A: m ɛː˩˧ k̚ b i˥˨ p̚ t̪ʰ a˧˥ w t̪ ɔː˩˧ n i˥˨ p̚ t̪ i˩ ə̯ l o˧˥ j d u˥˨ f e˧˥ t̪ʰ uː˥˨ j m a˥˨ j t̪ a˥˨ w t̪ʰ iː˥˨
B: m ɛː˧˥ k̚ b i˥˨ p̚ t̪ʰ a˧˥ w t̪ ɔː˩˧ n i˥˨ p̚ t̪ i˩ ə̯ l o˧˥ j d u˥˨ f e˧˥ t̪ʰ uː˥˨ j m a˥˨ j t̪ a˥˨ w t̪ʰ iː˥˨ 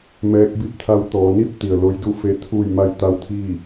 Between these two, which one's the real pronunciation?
B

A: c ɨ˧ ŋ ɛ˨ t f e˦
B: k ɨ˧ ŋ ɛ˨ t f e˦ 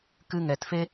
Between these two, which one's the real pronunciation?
B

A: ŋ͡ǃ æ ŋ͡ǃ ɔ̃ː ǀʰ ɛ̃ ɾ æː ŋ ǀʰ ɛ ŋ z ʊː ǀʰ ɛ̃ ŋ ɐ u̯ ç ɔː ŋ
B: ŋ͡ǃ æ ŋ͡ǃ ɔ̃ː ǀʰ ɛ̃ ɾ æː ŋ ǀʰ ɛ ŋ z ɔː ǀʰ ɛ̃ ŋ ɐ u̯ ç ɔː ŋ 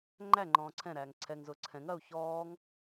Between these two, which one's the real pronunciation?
A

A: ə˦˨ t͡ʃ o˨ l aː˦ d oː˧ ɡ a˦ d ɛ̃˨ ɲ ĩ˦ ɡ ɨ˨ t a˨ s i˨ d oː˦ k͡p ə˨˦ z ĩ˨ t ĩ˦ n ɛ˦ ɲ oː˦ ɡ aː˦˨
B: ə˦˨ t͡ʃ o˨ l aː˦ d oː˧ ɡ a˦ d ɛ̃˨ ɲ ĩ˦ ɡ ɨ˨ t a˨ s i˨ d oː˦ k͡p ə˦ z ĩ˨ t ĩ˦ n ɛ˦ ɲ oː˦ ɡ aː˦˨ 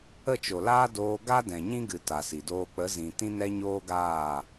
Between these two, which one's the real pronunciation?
A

